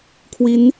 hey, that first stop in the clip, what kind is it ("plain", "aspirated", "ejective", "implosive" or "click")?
aspirated